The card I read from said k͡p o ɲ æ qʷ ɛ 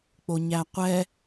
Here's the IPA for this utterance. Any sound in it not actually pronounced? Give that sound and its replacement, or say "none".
none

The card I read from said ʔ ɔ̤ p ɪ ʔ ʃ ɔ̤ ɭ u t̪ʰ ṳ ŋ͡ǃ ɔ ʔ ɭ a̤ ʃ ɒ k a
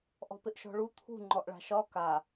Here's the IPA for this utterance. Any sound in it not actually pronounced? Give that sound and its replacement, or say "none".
none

